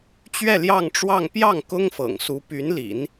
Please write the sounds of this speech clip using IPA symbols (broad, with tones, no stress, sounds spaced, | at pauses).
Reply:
t͡ɕ ɥ ɛ˥˧ l j ɑ˥˧ ŋ ʈ͡ʂ w ɑ˥˧ ŋ p j ɑ˥˩ ŋ k ʊ˥ ŋ f ɤ̰˨˩ ŋ s u˧˥ p y˧˥ n l ḭ˨˩˦ n